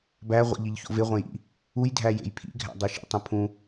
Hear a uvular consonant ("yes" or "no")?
yes